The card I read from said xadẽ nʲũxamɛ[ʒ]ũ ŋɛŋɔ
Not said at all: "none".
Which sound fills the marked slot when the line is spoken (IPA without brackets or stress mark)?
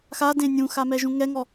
ʒ